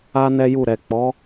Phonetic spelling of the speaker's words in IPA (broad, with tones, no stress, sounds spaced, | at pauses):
a˦ n ɛ˦ j u˦˨ ɾ ɛ˨ k͡p ɔ˨˦